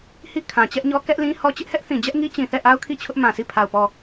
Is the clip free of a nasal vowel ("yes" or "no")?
no